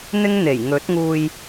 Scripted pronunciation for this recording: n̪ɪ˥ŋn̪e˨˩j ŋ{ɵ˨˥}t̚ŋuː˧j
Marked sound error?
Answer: no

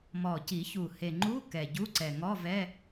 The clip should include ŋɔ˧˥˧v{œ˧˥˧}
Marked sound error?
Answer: yes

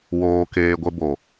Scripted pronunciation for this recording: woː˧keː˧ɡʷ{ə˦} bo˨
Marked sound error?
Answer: no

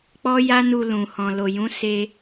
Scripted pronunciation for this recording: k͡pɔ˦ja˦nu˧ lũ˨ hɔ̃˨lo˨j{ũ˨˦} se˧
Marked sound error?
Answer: no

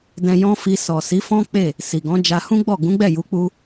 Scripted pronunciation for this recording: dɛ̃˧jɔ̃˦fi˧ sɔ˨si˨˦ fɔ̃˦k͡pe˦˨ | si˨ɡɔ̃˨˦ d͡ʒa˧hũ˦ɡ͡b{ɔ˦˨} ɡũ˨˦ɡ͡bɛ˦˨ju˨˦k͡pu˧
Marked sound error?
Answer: no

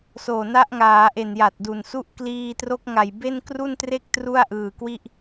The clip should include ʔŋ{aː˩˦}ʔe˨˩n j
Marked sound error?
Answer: no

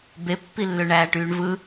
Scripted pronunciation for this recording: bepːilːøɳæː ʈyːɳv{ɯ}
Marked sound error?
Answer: no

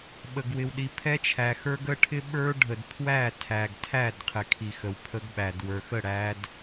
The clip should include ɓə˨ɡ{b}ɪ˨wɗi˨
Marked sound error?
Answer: yes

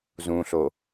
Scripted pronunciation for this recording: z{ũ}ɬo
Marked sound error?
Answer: no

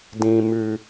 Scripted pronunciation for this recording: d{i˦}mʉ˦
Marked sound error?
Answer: yes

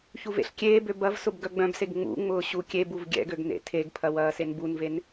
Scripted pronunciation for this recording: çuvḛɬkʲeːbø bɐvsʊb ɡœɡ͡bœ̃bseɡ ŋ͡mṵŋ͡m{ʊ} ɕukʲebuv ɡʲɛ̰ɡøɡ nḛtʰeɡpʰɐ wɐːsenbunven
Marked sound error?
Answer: yes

